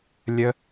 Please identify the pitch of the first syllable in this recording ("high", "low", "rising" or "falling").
high